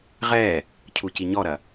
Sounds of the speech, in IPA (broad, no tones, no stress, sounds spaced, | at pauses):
ʁ ɛ | cʰ u c i ɲ ɔ ɾ ɐ